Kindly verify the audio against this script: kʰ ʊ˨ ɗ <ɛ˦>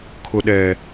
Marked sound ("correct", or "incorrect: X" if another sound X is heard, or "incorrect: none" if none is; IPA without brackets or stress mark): incorrect: ɛ˨